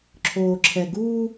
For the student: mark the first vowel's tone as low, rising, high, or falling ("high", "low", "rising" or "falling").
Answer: low